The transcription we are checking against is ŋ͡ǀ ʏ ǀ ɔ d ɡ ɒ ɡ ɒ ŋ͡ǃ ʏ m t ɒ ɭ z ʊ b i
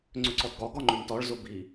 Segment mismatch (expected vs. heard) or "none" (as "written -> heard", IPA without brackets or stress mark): none